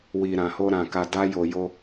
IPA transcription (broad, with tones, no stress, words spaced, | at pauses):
wi˨ɾã˨ho˧ ɾã˨ ka˧da˦jo˧jo˦